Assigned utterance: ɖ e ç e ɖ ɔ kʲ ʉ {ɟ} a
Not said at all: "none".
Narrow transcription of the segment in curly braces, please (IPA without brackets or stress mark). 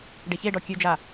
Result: d͡ʒ